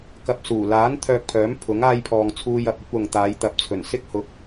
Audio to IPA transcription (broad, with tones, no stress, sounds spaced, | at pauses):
k ɐ˧ p̚ s uː˨˩ l aː˨˥ n t̪ʰ œː˧ k̚ pʰ œː˨˥ m pʰ ʊ˨˥ ŋ aː˧ j pʰ ɔː˨ ŋ t͡sʰ uː˧ j ɐ˨ p̚ ɵ˨˥ t̚ w ʊ˨ ŋ t̪ aː˨˧ j t̪ ɐ˨ p̚ t͡sʰ ɵ˨˩ n s ɪ˥ k̚ h ʊ˨˥ k̚